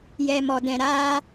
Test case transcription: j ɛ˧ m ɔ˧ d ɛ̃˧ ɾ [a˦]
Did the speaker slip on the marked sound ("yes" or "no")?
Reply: no